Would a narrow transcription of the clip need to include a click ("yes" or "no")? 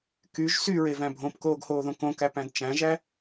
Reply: no